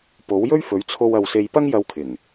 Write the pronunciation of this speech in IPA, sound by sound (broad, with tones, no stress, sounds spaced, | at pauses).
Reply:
p o˨˥ w j ɵ˥ ɥ f ɵ˨˥ ɥ t͡sʰ o˧ w ɐ˧ w s e˧ j p ɐ˥ ŋ j ɐ˧ w kʰ ɪ˨˩ ŋ